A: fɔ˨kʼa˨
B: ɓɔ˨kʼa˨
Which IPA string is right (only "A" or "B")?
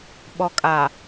B